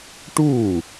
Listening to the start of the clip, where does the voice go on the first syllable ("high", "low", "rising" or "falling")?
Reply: falling